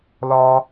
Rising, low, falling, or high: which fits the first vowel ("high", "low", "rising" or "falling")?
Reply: low